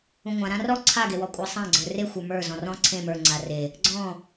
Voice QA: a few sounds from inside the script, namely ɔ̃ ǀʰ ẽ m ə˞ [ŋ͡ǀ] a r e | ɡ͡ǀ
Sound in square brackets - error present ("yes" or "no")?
no